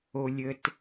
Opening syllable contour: low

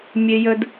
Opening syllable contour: low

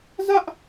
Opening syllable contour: high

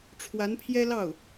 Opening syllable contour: rising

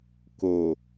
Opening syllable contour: low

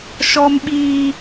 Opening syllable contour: high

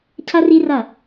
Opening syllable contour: high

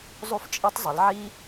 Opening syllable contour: high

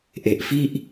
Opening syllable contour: low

